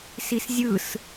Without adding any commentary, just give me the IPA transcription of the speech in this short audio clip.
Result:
s i s zʲ ɯ s

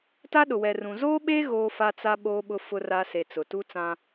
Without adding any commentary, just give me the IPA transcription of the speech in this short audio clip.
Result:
t a˦ ɗ ʊ˨ w ɛ˨ r ũ˨ z oː˦ ɓ eː˦ ɣ oː˦ f a˦ t͡s a˦ ɓ oː˦ ɓ ʊ˦ f ʊ˦ r a˦ s e˨ t͡s ʊ˨ t u˦ t͡s ã˦

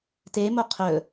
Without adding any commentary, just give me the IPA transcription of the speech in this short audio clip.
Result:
t e m o qʰ ɵ

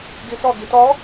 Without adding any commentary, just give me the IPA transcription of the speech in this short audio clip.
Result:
ɡ i s ɔ ɡ i t ɔ

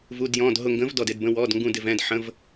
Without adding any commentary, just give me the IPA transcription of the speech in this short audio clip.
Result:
v u˧˥˧ d j ɔ̃˧˥˧ d ɦ ʊ˦˨ ŋ ɡ ə̃˧˥ v d ɔ˦˨ d ɪ˧˥˧ d b ə̃˧˥˧ w ɔ˧˥˧ d ŋ ɡ ũ˦˨ d ɪ˦˨ v ɛ̃˦˨ d ħ ə̃˧˥˧ v

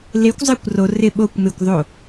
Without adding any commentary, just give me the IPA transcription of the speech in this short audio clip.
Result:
l e kʷ zˤ ɪː kʷ r o r ɪ ɓ o kʷ m ɪ kʷ ðˤ o

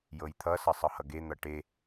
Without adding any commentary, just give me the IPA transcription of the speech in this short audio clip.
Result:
j ɤ j t̪ʰ ʌ s ʌ sˤ ɤ h ʌ ɡ e n̪ ʌ ʈ e

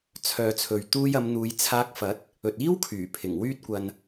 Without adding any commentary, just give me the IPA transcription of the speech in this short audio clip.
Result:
t͡sʰ œː˨ t͡sʰ ɵ˨ ɥ t̪ uː˧ j ɐ˨˧ m n̪ uː˨˧ j t͡sʰ aː˧ k̚ f ɐ˨˥ t̚ | ɵ˨ t̚ iː˥ w kʰ yː˨˩ pʰ ɪ˨˩ ŋ w yː˧ t̚ kʷ ɐ˨ n

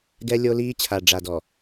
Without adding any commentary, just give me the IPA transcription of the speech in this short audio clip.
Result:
ɡ ɛ˦ lʲ o˦ l iː˦ t͡ɕʰ a˨ ɖ͡ʐ a˨ d ɔ˨

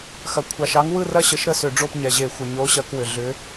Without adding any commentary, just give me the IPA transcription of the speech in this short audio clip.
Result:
x ɐ˩ kʷʰ ɑ˩ ʃ ɑ˨˥ ŋ w ɯ˥˨ r ɐ˥˨ ɕ ə˨˥ ʃ ɾ ə˥˨ s ʏ˧˩˧ ɖ͡ʐ o˥˨ p ɲ ɛ˩ ʑ e˧˩˧ xʷ ə˩ ɲ o˨˥ ɕ ɐ˧˩˧ k w ʏ˩ ɮ ʏ˨˥

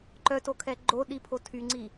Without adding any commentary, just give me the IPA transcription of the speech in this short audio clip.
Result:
ǃ œ t o kʰ ɛ ɡ͡ǃ o ɗ i pʰ o tʰ y ŋ͡ǀ i

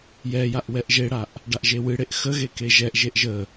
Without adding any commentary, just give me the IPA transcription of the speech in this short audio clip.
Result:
j ɛ j a ʔ w ɛ ʔ ʒ e ɽ a ʔ | ɖ a ʔ ʒ e w ɨ ɽ e ʔ x ə ɣ e k e ʒ ɛ ʔ ʒ e ʔ ʒ ə

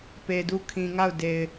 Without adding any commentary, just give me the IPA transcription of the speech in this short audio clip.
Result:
p e˨ d u˦˨ kʰ ĩ˨ ŋ a˦˨ ʊ̯ d e˨ ɪ̯

